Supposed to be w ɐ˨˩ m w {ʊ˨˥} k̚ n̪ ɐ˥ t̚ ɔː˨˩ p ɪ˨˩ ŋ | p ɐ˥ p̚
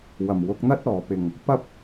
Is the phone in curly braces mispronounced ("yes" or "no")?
no